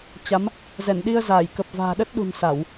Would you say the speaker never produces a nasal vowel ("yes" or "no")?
yes